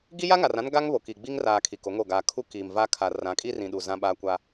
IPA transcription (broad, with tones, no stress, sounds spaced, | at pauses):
ɡ i˦ j a˦ ŋ a˨ r ã˦ n ɡ a˦ ŋ β o˨ k i˨ ɡ͡b i˦ ŋ r aː˨ kʰ i˨ k o˨˦ ŋ o˦˨ ɡ aː˨ kʰ u˦ k iː˨ m v a˦ kʰ a˨ r ã˨˦ kʼ i˦ r ĩ˨ ɗ u˨ z ã˦ ɓ aː˦ kʷ a˦